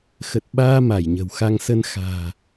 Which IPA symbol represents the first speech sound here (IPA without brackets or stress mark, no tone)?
x